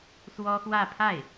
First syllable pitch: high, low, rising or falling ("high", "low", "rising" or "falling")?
high